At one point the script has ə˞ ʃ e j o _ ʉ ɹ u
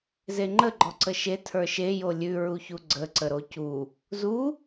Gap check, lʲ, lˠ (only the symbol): lʲ